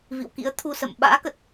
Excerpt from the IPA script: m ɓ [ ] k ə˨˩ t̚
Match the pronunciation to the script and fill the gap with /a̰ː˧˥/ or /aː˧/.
a̰ː˧˥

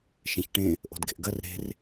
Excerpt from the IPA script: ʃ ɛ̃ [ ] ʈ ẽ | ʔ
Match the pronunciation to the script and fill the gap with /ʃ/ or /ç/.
ç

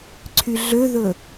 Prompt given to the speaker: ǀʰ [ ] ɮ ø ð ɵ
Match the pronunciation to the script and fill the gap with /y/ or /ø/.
y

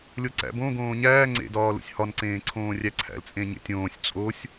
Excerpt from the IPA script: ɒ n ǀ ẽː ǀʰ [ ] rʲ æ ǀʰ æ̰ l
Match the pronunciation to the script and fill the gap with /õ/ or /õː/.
õː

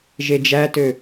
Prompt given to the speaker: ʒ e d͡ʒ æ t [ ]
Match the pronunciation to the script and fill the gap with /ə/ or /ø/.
ø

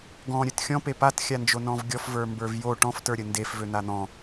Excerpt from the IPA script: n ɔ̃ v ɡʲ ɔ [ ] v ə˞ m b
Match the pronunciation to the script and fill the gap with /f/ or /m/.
f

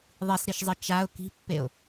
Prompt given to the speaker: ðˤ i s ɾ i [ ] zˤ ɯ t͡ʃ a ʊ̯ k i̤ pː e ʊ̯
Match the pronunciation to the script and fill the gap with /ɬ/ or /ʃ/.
ʃ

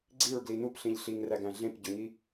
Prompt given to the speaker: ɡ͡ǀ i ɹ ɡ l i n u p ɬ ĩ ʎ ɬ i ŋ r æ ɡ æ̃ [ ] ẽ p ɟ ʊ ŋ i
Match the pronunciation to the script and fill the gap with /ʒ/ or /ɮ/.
ɮ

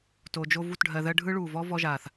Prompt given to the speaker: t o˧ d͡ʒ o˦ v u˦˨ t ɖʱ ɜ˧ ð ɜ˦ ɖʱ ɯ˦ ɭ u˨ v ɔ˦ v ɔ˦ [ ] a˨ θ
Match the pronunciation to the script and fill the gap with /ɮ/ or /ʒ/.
ʒ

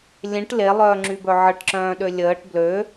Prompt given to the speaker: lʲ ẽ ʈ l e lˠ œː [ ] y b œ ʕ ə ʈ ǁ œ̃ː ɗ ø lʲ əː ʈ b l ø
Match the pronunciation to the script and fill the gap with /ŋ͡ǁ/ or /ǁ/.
ŋ͡ǁ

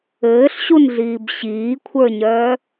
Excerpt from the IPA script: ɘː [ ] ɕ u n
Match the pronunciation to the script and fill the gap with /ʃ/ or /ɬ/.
ɬ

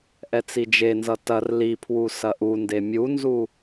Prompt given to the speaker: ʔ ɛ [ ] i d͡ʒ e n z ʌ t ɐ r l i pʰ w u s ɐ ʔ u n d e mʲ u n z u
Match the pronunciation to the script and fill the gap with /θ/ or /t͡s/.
t͡s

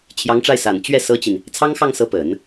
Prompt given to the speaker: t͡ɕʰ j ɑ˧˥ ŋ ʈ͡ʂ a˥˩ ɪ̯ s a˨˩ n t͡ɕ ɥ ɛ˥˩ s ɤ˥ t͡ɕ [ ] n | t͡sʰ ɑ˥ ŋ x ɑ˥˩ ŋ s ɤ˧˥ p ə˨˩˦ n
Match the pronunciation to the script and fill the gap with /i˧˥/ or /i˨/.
i˨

